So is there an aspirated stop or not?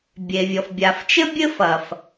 no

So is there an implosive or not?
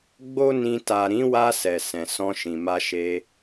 no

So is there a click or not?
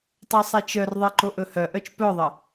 yes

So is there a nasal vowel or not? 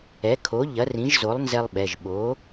yes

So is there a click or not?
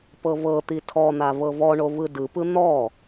no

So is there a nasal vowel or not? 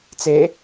no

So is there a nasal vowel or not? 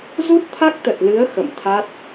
no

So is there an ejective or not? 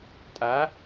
yes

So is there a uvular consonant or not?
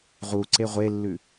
yes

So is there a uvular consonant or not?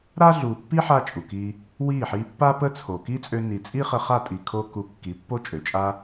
yes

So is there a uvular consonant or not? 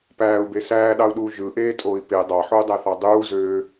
no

